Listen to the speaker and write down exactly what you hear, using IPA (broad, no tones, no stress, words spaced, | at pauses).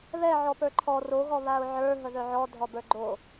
βɛ ʕɔpə˞ǃʰɔ ro ɣɔβaʊ̯ʕə˞ ɦəðœʕɔ dʱɔbə˞ɡ͡ǃo